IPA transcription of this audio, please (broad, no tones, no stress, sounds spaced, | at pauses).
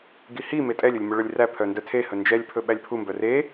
ɡ i h i m e tʼ ɛ lʲ ɵ lʲ m ɵ ɭ œ lʲ r æ pʰ œ n d œ tʰ e h ɵ n d͡ʒ ɛ lʲ pʰ ɵ ɓ æ lʲ pʰ u m b œ r e